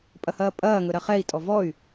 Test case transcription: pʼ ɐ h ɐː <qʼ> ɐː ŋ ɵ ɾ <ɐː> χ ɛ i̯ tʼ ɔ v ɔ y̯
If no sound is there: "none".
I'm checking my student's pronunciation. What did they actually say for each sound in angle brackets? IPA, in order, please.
pʼ, ɐ

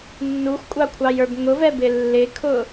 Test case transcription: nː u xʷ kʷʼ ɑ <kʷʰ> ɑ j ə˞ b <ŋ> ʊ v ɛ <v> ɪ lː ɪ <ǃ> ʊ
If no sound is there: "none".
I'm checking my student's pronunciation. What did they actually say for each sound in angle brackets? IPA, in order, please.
kʷʰ, ŋ, b, kʰ

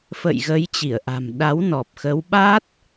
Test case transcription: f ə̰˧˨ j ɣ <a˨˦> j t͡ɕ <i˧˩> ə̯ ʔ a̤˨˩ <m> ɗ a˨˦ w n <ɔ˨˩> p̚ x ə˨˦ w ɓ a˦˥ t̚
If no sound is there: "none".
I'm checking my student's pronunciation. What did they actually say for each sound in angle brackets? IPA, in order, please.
ə˨˦, i˧˩, m, ɔ˨˩

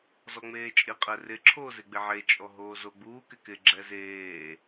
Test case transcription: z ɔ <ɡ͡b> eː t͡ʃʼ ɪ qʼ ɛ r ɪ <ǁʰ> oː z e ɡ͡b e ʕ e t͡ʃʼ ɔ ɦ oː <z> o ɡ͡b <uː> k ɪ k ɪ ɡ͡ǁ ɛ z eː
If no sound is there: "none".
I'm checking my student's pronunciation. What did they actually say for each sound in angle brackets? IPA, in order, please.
ŋ͡m, ǁʰ, z, uː

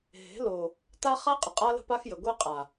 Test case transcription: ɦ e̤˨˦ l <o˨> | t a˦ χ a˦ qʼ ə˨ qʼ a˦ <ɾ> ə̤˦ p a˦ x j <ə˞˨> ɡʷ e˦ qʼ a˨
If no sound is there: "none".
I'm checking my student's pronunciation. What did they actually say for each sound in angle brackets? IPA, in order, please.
o˨, l, ə˨

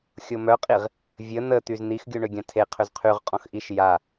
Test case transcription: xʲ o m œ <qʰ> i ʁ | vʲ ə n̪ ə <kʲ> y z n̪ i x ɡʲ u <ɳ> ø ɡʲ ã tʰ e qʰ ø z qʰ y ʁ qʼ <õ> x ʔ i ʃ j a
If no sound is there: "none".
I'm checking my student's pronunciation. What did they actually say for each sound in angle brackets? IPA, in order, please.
qʼ, t̪, ɳ, ɔ̃

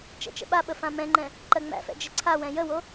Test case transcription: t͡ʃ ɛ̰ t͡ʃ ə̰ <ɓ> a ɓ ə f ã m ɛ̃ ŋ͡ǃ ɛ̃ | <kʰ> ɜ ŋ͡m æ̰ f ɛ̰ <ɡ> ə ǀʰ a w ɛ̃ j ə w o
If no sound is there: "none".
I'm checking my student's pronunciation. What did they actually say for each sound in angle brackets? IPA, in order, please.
ɓ, ǃ, d͡ʒ

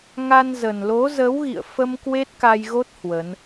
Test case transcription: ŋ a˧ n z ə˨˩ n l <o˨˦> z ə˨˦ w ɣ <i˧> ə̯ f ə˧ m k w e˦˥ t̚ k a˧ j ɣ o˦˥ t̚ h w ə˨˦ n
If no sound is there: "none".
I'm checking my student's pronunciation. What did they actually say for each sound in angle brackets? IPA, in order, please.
o˨˦, ḭ˧˨

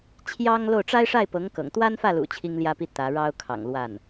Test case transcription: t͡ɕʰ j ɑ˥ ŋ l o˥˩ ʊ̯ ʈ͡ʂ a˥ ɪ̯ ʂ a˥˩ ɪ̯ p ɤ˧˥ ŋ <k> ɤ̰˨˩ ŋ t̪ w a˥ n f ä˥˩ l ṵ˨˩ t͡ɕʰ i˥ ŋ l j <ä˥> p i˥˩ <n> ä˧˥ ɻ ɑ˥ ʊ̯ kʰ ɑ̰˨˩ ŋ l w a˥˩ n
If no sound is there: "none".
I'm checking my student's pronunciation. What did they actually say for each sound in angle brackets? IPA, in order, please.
k, ä˥, t̪

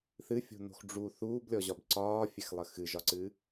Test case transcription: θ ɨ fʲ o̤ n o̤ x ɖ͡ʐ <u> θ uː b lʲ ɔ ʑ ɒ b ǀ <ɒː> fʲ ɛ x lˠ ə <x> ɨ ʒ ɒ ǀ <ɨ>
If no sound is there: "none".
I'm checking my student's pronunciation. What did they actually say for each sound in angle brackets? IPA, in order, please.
u, ɒː, x, ɨ

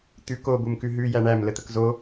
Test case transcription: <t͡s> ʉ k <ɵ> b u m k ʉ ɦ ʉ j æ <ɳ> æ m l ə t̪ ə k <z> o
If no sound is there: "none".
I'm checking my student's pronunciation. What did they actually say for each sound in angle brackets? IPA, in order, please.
t̪, o, ɳ, z

